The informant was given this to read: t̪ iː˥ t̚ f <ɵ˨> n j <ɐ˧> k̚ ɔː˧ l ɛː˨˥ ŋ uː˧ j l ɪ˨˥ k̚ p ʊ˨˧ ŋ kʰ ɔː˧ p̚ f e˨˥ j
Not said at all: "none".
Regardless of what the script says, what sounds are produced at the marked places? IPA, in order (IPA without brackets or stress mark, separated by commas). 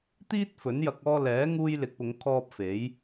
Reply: ɵ˨˥, ɐ˧